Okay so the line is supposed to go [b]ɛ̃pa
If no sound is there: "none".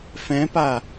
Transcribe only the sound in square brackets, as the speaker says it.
f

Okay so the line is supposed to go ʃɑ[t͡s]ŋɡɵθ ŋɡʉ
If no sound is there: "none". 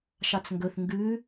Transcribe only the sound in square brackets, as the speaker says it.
t͡s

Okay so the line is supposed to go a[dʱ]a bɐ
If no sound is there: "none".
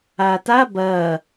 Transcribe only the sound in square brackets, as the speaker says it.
t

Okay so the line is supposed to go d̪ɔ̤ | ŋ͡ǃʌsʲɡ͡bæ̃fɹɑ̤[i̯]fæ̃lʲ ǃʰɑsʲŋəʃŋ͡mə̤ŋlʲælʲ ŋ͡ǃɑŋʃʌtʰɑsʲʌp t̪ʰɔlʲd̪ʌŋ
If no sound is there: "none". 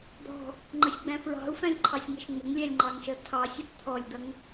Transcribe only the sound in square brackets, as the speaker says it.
u̯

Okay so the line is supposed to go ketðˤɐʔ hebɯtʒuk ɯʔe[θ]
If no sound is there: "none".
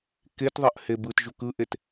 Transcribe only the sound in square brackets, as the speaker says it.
t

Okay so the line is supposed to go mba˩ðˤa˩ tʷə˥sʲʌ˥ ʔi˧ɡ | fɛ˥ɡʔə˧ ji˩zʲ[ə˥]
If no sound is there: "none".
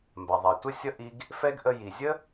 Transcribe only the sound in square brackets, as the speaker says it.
ə˥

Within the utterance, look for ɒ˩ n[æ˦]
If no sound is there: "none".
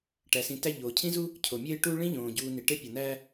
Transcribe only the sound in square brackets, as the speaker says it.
æ˦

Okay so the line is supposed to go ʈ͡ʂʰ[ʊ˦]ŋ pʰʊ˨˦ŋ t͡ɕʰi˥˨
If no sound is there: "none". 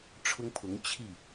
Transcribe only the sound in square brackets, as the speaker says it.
ʊ˦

